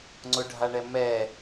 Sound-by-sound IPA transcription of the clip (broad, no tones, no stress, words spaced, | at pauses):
ŋ͡ǀʊɖʱaɳɛ mɛ